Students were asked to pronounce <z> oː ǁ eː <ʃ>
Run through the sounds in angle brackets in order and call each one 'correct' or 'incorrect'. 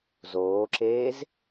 correct, incorrect

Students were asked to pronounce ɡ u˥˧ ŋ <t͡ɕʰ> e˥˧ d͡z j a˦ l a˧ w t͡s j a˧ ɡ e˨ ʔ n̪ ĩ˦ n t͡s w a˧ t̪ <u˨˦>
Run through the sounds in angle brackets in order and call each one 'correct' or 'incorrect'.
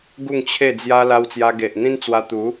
correct, correct

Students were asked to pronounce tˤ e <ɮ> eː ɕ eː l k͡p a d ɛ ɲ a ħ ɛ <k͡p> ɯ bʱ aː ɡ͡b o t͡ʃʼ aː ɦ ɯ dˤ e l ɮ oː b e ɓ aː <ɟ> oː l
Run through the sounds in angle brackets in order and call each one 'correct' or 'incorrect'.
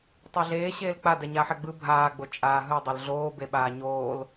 correct, incorrect, incorrect

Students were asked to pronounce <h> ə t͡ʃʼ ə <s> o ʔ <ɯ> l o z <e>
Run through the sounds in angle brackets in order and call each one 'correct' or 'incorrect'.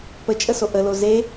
incorrect, correct, incorrect, correct

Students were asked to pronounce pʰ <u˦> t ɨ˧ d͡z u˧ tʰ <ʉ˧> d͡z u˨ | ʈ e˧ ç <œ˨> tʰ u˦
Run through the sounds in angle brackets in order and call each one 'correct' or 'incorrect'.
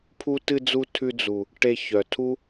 incorrect, correct, correct

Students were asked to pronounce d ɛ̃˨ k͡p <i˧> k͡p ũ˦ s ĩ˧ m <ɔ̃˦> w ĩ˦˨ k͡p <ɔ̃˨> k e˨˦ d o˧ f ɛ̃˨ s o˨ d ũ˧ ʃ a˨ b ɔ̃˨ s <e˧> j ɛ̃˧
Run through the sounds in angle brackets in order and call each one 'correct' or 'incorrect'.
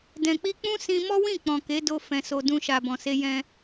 correct, incorrect, correct, correct

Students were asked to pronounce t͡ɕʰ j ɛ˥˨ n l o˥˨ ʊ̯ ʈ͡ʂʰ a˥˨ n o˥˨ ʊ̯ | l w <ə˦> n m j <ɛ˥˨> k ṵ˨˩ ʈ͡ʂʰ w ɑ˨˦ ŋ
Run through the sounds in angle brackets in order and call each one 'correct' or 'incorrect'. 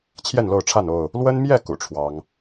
correct, correct

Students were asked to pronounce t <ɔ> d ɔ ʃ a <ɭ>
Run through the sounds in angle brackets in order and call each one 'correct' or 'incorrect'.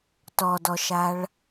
correct, correct

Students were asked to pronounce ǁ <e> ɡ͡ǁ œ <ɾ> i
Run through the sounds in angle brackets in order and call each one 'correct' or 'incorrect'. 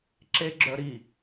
correct, correct

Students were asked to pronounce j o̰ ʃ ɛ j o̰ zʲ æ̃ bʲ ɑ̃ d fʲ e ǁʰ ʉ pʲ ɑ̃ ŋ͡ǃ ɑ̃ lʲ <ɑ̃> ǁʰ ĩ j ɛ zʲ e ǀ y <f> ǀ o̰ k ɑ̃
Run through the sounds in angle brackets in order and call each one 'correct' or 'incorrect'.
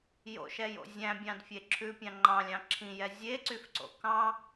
correct, correct

